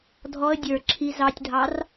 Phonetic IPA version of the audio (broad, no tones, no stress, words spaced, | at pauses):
dʱɔə̯ dʲə˞ ǁʰi zɑtʲdʱɑr